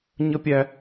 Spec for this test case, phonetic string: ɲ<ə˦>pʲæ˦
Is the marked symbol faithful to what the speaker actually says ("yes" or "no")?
yes